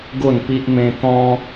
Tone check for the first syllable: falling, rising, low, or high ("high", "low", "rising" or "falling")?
falling